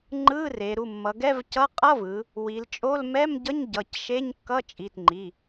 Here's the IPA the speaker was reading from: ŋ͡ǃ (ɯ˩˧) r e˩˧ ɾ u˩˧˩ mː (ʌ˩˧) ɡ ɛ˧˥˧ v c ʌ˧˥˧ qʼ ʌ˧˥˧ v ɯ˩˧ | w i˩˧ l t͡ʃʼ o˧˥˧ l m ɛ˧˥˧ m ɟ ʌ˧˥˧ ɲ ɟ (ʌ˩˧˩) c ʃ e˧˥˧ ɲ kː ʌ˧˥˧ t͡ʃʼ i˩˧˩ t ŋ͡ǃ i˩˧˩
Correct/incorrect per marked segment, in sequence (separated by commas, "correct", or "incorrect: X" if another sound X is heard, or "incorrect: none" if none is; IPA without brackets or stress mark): incorrect: ɯ˧˥˧, correct, correct